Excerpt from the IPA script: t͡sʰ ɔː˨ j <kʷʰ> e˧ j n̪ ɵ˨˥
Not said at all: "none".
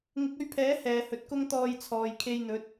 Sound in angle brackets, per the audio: kʰ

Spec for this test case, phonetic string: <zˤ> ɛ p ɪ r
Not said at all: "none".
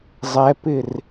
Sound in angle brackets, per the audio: zˤ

